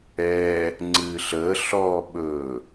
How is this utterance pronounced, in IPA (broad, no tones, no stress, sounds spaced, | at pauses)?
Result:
ɛ | ŋ͡ǀ ɨː ɬ əː ɬ ɔː ɓ ɵ